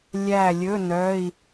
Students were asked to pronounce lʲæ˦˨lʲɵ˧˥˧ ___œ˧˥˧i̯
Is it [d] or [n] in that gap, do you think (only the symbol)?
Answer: n